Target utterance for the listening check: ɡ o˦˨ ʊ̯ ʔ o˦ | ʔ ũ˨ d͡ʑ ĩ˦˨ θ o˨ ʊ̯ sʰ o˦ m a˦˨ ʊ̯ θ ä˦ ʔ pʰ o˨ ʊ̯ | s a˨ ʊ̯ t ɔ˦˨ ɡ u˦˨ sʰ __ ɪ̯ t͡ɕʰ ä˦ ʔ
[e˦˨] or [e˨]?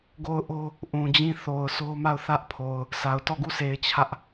e˨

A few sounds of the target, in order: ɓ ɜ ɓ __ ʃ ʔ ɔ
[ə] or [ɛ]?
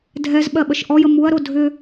ə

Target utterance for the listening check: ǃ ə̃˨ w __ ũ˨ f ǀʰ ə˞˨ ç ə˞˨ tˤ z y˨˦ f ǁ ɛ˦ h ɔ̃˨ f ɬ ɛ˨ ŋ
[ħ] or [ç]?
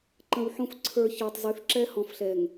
ħ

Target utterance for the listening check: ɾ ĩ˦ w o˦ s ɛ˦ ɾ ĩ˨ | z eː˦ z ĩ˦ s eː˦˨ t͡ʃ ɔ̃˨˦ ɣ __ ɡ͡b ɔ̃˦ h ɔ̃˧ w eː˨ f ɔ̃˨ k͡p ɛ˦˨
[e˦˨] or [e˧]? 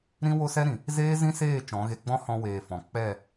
e˧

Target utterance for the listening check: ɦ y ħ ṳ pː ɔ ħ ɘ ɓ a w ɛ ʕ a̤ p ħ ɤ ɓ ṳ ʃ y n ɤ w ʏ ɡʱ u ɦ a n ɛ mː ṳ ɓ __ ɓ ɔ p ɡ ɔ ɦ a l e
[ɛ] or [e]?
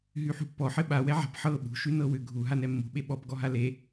e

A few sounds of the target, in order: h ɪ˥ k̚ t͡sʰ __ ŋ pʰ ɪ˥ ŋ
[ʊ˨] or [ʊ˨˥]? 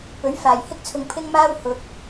ʊ˨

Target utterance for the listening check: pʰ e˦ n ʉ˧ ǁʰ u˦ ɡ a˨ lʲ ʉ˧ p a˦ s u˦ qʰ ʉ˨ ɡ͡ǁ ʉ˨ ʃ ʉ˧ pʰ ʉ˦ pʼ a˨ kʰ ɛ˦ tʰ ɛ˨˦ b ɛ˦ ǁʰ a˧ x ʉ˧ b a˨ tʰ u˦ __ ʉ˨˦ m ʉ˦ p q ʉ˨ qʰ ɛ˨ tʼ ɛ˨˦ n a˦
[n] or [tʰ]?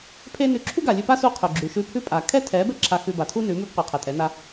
n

